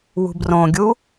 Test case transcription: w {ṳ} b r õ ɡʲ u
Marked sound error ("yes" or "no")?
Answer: no